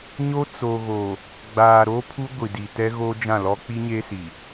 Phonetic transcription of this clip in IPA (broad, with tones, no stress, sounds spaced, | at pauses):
ɲ o˦ t͡s o˨ ɣ o˨ | ɡ͡b aː˨ ɾ oː˦ pʰ u˦ ɡʷ i˨ d i˨ t ɛ˦ ɣ oː˦ d͡ʒ ã˦˨ l ɔ˦ k͡p i˦ ɲ e˦ s i˨